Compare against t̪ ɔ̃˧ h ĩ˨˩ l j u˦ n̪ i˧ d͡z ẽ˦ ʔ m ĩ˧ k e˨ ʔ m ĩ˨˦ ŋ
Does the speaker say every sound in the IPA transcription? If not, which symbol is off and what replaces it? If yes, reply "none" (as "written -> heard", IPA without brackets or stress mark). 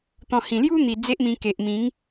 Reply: ẽ˦ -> e˦